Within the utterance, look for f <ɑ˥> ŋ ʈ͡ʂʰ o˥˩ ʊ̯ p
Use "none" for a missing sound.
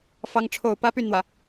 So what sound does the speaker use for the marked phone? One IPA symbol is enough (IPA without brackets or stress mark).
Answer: ɑ˥